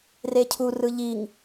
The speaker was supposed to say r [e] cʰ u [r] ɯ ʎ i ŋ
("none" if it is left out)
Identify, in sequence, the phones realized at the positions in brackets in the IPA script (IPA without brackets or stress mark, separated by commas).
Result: e, r